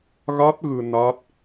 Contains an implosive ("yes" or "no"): no